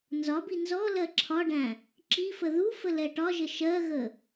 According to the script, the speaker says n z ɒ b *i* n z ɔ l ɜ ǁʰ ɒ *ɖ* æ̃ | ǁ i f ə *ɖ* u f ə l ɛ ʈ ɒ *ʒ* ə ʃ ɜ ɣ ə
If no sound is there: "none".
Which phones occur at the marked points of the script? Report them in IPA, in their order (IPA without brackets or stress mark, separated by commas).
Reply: i, ɖ, ð, ʒ